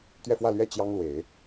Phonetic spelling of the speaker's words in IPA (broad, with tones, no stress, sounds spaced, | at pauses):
t̪ ɥ ɛ˥˧ f w ä˥˧ l ɥ ɛ˥˩ t͡ɕ j ɑ˥ ŋ l w e˨˩˦ ɪ̯